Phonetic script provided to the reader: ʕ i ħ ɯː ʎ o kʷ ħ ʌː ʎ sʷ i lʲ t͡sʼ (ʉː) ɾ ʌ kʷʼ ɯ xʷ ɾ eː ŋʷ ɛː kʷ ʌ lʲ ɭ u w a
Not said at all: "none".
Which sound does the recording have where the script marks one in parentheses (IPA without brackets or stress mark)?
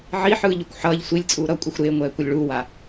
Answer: uː